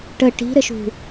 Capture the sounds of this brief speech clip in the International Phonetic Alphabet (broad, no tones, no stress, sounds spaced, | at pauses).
ʈ ə ʈ i̤ ɾ ɘ ʃ ṳ